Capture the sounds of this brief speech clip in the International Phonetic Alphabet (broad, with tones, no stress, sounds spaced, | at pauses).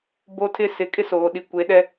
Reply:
b o˦ tʰ ɪ˦ s ɪ˨˦ kʼ ɪ˦ s oː˨ ɗ i˨ kʷ e˨˦ ɗ ɛ˦